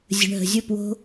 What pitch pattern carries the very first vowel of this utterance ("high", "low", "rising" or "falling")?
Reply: low